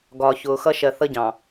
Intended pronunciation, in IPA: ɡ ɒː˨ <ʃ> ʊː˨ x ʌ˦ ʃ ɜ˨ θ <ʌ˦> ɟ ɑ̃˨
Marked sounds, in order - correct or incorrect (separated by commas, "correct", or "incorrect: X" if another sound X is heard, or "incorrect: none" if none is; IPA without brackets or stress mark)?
incorrect: ç, correct